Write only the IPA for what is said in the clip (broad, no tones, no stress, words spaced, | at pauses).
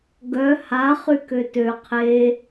ɡœ ha χykøtø qʰe